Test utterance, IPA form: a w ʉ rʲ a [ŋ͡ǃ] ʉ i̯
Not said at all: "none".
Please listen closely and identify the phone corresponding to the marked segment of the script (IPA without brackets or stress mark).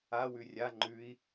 ŋ͡ǃ